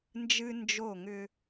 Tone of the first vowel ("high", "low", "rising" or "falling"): high